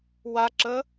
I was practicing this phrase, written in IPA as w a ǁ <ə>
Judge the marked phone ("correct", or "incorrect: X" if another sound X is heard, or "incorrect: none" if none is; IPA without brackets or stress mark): correct